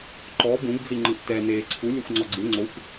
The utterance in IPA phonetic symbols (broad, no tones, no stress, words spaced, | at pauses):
ǃɔ bũɡd͡zi ŋ͡ǃɯʔtɛ neːǀʰu lʲɛxʷŋ͡ǀɔɡ͡ǀɯ ŋ͡ǀoxʷ